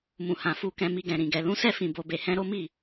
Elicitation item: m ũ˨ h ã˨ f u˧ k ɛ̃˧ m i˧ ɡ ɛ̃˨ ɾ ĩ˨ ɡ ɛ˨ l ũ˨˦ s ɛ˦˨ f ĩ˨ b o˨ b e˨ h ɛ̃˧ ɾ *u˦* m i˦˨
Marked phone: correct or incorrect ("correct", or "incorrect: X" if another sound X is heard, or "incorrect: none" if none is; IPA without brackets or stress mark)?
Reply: incorrect: o˦